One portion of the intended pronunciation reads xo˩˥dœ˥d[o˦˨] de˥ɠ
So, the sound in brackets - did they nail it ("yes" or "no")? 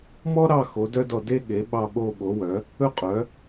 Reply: no